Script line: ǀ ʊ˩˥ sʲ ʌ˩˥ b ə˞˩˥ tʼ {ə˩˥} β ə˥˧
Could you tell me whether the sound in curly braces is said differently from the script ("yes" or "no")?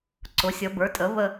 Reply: no